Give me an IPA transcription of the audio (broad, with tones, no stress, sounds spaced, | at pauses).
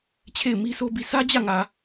t͡ɕʰ e˦˨ ɪ̯ m i˦ s o˦ b i˦˨ s ä˦ d͡ʑ ä˦˨ ŋ ä˨